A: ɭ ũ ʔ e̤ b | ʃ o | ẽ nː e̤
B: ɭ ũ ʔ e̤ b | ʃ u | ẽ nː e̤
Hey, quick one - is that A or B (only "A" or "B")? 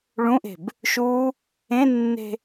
B